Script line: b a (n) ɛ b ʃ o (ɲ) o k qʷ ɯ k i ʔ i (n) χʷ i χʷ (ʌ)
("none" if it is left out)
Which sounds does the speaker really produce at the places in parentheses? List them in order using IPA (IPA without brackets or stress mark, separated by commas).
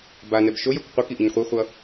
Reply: n, j, ɲ, ʌ